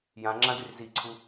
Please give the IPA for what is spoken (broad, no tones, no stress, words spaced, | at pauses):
jãŋ͡ǁãdyr ziǀʰu